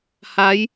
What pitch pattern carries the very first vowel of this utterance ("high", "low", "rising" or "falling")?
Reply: rising